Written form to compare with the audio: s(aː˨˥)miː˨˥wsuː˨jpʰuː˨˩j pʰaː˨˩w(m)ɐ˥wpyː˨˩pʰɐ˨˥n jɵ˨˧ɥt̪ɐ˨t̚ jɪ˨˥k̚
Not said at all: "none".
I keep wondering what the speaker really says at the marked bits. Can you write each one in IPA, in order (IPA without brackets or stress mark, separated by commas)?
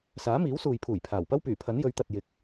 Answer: aː˨˥, p